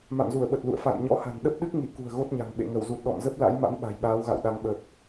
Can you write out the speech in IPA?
m a̰˧˨ m z u˧˩ ə̯ ɓ ə˨˩ t̚ l ṵ˧˨ ə̯ f a̰˧˨ n ɲ ɔ̰˧˥ h a̤˨˩ n ɗ ə˦˥ p̚ ɗ ɨ˦˥ k̚ ŋ i˧˩ k ṳ˨˩ ə̯ ɣ o˦˥ t̚ ɲ a̤˨˩ ŋ ɓ ḛ˧˨ ŋ ə˧˩ w z u˨˩ t̚ ɗ ɔ̰˧˨ m z ə˦˥ p̚ l a̰˧˥ j m a̰˧˥ m ɓ a̤˨˩ j ɓ aː˨˦ w ɣ a̰˧˨ w ɗ a˨˦ ŋ ɓ ə˨˩ p̚

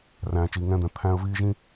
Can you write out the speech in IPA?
r æ̃ː˨ t͡ʃ iː˨ ŋ ɛ̃ː˦ d̪ ɛ̃˨ t̪ʰ æ̃˦ ə̯ v iː˦ ʒ ĩ˦

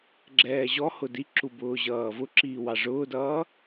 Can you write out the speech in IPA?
ɡ͡ǁ ɛː ʑ ɔ h ʊ d i ǁ u b ʊː ʑ ʌː v ʊ ǁ iː w ɑ ʐ ʊː d ʌː

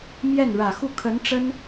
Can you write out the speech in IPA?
m j ɛ˥˩ n ɻ ä˨˩ x u˥˩ kʰ ə˧˥ n ʈ͡ʂ ə˥ n

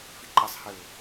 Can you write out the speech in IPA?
f i ǃ ɘ sˤ h ɘ ʊ̯

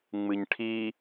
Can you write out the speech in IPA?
ŋ͡m ɨ ɲ ʈʰ i

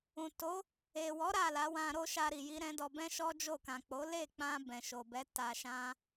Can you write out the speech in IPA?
ũ˨ t o˨˦ | e˨ w ɔ˨˦ ɾ a˦˨ l a˨˦ w ã˧ ɾ o˦ ʃ a˧ ɾ i˨ j i˧ ɾ ɛ̃˦ d ɔ˧ b ɛ̃˦ ʃ ɔ˦ d͡ʒ o˦˨ k ã˨ k͡p o˨˦ l e˦˨ k͡p ã˧ b ɛ̃˨ ʃ o˨ b ɛ˨˦ t a˧ ʃ ã˦

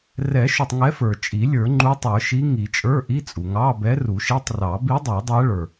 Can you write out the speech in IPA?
r ɛ˨˩˦ ʃ u˩ tˤ ŋ ɛ˧˥ f ə˞˩ t͡ʃʼ i˨˩˦ lʲ ə˞˨˩˦ ŋ͡ǃ u˧˥ tˤ ə˞˨˩˦ ʃ i˧˥ ŋ i˨˩˦ t͡ʃʼ ə˞˧˥˧ ʔ i˧˥˧ t͡sʼ u˩ ŋ ɑ˧˥˧ b ɛ˧˥ r u˨˩˦ ʃ i˧˥˧ tˤ r ɑ˨˩˦ b i˧˥ dˤ ə˞˨˩˦ dˤ æ˧˥ ɭ ə˞˩

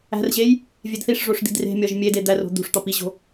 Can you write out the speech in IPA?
æ̤ r ʑ e j | vʲ e d θ i ʂ ʐ o ʂ d̪ i̤ d r e̤ mʲ ɒ ʒ mʲ e d e d̪ æ r o̤ d̪ ṳ ʂ t̪ ɒ p i ʑ o̤

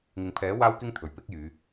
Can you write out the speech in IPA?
ŋ ɪ˨ ŋ pʰ ɛː˨˥ w aː˥ w k ɪ˥ ŋ t̪ʰ ɵ˨˩ ɥ p ɪ˥ k̚ j yː˨˧

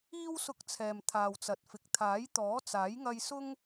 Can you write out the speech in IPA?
iː˥ w s ʊ˧ k̚ t͡sʰ ɛː˨ m t̪ʰ aː˨ w t͡s ɐ˨ t̚ f ɪ˨ k̚ t̪ʰ aː˨˥ j t̪ ɔː˨˥ t͡s aː˨˥ j ŋ ɐ˥ j s ʊ˥ ŋ

